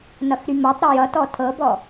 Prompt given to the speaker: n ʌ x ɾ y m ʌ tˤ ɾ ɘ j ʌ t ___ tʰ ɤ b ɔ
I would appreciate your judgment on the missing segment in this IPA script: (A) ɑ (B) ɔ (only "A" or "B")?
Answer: B